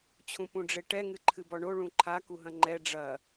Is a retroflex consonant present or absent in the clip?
present